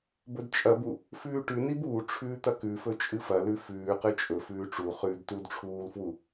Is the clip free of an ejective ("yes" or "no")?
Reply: no